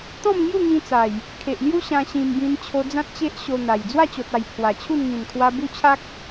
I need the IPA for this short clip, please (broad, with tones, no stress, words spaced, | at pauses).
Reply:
t̪ɔ̃˥˧mŋju˥˧ŋĩ˧ t͡sa˨˩j | kʰe˨ʔlju˦ɕã˧ ɕĩ˧mbĩ˧n t͡ɕʰo˧ d͡zã˦t̚t͡ɕe˦ʔɕo˧n̪a˨˩j d͡zwa˥˧t͡ɕo˨t̚a˨˩j pʰwa˨˩t͡ɕʰu˥˧n ŋĩ˨˩nkʰwa˧ bu˦t͡ɕʰa˦k̚